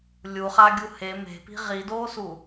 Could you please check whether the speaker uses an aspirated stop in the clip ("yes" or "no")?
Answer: no